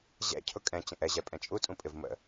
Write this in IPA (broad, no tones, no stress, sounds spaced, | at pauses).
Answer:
ʑ ɛ̰ cʰ ʊ kʼ ɛ̃ t͡ɕ ə̃ ʔ ɛ ʑ ɛ pʼ ɛ̃ t͡ʃʼ u tʼ ũ pʼ ɪ v m ə̰